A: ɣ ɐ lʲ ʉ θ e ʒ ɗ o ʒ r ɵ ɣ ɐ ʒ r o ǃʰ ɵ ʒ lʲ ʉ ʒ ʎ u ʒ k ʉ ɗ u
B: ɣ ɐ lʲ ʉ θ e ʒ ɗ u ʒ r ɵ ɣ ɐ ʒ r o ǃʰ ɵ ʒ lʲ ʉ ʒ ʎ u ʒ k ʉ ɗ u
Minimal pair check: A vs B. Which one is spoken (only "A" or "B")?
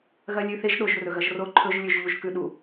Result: A